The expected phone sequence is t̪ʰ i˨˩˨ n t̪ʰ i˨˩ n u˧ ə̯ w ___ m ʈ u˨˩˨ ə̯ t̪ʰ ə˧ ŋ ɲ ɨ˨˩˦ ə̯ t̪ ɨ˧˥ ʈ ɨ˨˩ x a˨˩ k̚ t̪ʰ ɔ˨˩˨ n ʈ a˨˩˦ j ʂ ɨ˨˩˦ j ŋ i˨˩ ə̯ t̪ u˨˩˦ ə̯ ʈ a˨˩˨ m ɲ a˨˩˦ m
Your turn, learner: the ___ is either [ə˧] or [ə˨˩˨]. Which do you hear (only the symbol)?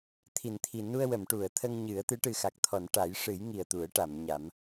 ə˨˩˨